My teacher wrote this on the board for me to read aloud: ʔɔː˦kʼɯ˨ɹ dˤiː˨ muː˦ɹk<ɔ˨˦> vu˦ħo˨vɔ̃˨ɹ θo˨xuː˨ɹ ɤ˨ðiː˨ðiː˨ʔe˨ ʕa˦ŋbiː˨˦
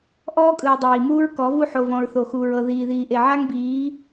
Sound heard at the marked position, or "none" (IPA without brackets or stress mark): ɔ˨˦